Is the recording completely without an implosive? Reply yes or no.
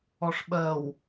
no